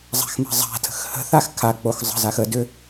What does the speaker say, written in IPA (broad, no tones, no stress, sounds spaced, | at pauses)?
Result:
zˤ a̤ x m a̤ zˤ a̤ tʰ ə̤ x h ə̤ θ a x kʰ a k͡p o x zˤ ə̤ z a x ə d ʏ